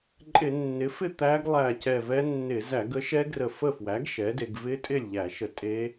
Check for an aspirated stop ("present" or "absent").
absent